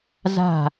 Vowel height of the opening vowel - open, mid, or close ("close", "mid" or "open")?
open